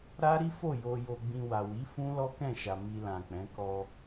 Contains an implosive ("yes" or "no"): no